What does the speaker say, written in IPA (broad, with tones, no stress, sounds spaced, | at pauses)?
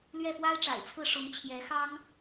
l ɥ ɛ˥˩ f w a˥ ɪ̯ ʈ͡ʂ a̰˨˩ ɪ̯ t͡sʰ ɹ̩˥˩ ʂ ʊ˧˥ ŋ t͡ɕʰ j ɛ˧˥ x ɑ˥ ŋ